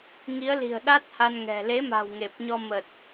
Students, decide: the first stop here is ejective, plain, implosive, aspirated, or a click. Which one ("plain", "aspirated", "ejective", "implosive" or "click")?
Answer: implosive